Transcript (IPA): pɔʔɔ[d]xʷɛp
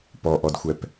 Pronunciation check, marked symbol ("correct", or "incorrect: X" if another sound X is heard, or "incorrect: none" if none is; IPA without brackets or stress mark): correct